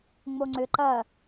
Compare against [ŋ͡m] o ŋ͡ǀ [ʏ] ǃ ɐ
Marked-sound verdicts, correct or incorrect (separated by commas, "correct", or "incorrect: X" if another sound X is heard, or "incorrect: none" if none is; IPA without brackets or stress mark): correct, correct